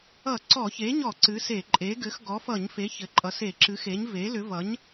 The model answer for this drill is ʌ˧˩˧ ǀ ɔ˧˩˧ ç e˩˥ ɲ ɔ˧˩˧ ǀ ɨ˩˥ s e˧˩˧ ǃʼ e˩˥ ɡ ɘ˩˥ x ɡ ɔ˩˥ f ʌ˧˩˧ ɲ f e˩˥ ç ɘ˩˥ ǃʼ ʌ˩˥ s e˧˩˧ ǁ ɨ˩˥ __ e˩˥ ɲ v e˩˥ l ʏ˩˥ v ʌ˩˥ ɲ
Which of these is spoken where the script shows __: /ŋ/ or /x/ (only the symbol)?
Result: x